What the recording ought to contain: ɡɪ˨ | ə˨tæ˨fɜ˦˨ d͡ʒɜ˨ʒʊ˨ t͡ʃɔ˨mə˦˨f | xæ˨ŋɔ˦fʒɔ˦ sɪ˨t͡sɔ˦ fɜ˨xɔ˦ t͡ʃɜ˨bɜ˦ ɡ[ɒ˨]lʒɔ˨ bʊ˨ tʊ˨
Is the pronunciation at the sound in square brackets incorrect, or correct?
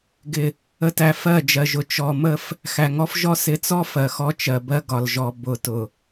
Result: correct